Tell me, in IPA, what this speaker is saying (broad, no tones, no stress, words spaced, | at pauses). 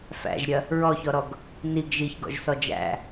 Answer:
fæ̰ʒɾʲɐ | ɹɔçɔɾɔɡ | niɡ ʒiçɡɔ̰ʒsɔ d͡ʒæ̰